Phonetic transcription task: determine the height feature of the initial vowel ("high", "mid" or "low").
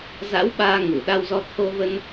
low